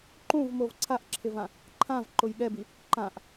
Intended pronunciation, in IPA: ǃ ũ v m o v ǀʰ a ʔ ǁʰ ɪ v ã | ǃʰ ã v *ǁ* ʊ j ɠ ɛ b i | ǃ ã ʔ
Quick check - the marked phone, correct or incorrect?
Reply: incorrect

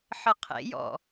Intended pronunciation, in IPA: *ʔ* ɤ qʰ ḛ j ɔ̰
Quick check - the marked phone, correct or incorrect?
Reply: incorrect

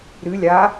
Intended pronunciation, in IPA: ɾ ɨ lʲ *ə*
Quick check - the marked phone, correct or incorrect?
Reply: incorrect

